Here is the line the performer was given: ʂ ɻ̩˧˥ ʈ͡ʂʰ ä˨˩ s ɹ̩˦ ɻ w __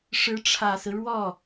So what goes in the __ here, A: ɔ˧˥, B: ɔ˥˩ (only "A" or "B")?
B